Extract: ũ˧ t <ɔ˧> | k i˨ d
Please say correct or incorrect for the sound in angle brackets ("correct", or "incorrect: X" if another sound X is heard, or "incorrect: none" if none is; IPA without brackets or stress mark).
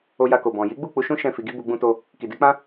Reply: incorrect: o˧